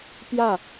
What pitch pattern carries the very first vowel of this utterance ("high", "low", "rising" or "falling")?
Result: falling